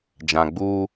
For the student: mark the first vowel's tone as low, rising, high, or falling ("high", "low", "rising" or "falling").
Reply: low